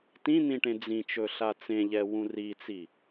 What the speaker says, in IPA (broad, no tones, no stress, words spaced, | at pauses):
tĩn̪ĩ ʈẽd͡zĩt͡ʃɵ ɬat͡sẽʎɛ wũrit͡si